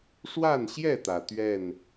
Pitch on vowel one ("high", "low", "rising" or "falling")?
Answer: falling